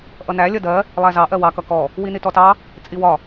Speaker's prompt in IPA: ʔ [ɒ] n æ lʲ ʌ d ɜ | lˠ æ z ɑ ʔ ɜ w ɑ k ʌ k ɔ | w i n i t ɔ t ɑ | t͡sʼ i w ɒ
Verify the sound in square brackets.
incorrect: ʌ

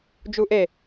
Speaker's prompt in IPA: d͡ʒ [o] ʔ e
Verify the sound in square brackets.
incorrect: u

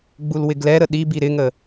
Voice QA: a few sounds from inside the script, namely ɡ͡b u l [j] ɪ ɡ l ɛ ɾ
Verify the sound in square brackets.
incorrect: w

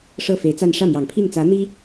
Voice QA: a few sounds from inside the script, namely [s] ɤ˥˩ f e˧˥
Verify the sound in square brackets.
incorrect: ʂ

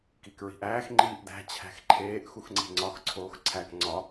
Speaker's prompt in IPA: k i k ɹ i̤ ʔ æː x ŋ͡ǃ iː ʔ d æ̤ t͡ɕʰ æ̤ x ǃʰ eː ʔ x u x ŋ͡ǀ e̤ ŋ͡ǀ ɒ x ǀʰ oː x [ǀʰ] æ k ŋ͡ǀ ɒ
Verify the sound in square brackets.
correct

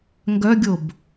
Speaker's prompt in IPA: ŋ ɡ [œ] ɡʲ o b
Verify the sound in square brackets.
correct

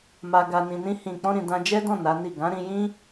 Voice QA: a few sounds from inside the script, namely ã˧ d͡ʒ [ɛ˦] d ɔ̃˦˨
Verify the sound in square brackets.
correct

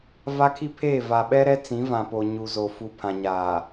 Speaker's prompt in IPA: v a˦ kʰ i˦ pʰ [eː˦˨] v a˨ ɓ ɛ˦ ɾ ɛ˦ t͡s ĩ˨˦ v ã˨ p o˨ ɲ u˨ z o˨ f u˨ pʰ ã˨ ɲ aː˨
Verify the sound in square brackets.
correct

